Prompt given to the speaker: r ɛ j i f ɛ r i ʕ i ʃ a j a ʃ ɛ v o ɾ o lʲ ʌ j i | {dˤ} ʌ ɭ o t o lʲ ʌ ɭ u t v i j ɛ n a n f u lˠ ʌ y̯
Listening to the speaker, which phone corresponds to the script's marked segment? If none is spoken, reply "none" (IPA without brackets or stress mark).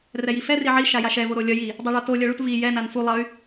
dˤ